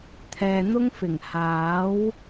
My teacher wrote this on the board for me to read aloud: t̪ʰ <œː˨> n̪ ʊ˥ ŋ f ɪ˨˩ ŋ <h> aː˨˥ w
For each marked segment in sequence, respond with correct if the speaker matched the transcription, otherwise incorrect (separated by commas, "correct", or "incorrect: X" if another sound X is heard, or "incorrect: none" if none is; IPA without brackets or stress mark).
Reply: incorrect: ɛː˨, correct